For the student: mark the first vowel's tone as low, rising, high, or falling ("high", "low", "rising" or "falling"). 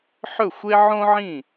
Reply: falling